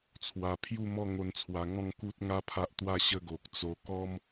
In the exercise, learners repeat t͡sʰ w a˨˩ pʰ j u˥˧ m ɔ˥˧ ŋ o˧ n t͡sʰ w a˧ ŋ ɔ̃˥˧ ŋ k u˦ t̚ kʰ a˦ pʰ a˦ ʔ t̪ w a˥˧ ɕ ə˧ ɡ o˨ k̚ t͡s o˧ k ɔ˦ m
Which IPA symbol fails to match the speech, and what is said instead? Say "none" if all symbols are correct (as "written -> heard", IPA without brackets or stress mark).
kʰ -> ŋ